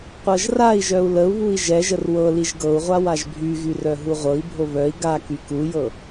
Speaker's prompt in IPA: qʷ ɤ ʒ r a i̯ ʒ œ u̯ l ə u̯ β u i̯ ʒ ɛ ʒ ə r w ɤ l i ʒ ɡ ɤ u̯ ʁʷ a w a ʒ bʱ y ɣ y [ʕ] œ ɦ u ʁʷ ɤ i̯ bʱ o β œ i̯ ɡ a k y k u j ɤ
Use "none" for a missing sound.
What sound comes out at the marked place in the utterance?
r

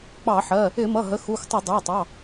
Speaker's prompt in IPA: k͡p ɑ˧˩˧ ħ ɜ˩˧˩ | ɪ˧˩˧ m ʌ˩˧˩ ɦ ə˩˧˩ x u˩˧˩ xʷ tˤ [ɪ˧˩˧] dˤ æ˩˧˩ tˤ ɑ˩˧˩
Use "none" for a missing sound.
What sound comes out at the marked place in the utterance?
ɪ˧˩˧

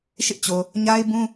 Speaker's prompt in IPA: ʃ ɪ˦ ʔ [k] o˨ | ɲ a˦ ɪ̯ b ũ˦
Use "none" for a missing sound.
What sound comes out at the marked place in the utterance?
t͡ɕ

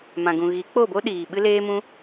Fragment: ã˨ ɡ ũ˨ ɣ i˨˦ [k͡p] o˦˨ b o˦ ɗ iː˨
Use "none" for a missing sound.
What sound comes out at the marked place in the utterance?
k͡p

